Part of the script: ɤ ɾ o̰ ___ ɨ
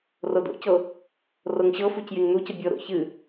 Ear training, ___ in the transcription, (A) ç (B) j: A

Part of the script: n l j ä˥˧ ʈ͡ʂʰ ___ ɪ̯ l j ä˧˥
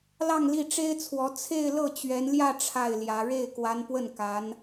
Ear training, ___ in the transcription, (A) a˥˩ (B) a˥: A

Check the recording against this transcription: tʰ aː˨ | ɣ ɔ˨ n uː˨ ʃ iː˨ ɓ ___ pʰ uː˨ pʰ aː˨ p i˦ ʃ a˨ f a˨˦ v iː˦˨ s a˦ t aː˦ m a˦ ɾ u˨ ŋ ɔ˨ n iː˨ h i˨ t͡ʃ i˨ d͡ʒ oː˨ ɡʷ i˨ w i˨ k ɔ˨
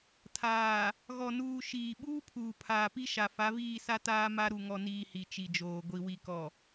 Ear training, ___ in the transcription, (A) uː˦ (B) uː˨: A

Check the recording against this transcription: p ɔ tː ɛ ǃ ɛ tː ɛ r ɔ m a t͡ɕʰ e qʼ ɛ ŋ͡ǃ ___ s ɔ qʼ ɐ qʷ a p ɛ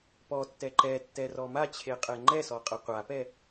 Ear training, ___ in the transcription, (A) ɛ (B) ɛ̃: A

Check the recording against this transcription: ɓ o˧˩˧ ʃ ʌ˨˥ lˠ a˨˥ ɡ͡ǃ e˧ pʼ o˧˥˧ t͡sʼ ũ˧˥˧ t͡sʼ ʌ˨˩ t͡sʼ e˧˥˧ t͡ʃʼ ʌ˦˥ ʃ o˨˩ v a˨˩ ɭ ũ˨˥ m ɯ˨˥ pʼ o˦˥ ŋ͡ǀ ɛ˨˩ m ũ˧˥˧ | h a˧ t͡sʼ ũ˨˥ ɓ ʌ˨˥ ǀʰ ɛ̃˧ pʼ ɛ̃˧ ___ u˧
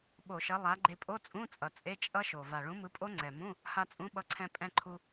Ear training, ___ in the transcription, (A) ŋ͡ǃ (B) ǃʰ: B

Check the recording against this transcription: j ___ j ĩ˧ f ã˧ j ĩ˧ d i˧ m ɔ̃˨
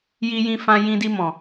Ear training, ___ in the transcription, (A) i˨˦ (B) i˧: B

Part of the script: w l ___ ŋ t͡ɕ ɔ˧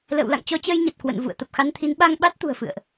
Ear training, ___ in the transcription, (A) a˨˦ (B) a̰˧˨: B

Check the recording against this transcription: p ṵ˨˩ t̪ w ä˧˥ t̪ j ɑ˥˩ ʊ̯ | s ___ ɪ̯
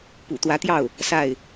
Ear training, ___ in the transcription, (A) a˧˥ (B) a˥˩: B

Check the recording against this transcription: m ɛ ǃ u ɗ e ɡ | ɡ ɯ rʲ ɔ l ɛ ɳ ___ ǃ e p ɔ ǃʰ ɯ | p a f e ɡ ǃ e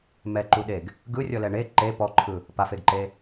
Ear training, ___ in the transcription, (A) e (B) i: A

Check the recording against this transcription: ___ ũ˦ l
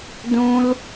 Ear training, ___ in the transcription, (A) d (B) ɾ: A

